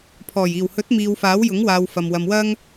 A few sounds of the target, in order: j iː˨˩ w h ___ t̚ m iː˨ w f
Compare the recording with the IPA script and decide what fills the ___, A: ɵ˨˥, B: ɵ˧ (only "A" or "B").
A